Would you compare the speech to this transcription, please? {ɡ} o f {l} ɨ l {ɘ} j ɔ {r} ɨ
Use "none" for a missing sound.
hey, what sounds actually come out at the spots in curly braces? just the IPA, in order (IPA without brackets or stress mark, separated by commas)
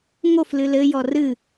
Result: ŋ, l, ɘ, r